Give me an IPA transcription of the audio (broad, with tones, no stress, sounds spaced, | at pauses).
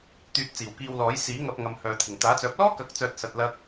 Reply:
t̪ yː˧ t̚ t͡s iː˨˩ w k iː˧ w l ɔː˨˥ j s iː˨˥ ŋ ɐ˧ p̚ ŋ ɐ˨ m h œː˨ t̪ʰ ɪ˨˩ ŋ t̪ aː˨˥ t͡s œː˨˥ p̚ l ɔː˥ k ɐ˨˥ k̚ t͡s œː˨ t̚ s ɐ˨ t̚ l ɐ˧ k̚